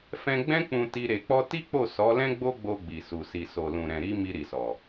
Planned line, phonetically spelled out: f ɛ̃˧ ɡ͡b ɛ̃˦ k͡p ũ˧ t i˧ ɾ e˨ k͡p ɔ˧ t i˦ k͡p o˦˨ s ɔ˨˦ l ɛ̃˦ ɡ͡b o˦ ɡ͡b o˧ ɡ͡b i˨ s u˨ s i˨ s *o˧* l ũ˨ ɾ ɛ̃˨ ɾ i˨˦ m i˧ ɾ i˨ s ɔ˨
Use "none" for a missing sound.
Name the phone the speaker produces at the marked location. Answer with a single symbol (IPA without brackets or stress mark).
o˨